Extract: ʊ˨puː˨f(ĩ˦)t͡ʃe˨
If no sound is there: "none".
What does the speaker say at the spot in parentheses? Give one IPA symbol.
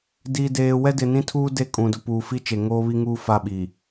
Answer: i˦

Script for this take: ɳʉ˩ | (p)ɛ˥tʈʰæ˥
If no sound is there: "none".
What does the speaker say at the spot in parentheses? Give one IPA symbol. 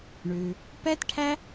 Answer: p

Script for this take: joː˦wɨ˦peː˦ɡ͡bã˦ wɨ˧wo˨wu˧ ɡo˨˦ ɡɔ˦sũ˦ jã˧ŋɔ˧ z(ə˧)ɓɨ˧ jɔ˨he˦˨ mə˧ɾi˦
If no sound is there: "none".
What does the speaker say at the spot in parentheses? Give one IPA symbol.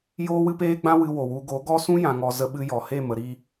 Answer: ə˧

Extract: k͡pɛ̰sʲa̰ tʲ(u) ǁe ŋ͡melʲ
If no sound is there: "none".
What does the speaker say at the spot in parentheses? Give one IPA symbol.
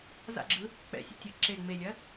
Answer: ɯ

